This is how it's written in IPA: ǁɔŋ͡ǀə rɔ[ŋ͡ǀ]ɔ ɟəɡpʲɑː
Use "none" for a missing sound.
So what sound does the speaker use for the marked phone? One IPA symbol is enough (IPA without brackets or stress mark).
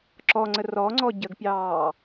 ŋ͡ǀ